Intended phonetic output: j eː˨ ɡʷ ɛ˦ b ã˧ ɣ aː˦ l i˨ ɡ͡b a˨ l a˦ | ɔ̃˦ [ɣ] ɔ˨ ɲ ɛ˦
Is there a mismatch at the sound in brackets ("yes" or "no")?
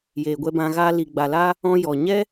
yes